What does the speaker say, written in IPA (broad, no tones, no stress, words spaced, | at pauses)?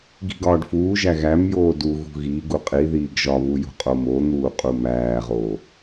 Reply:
ɡi̤ɡɒːɖfuːʒæ ɣæmjoː du ɣṳɣiɡu qʼiðiːɡ ʒɒβu jṳqʼomon̪uː qʼumæːʁoː